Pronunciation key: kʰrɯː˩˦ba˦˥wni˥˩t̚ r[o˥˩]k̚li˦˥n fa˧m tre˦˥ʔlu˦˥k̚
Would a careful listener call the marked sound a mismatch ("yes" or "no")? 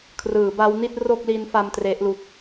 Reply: no